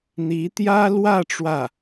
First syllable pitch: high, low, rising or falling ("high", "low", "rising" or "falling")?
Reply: rising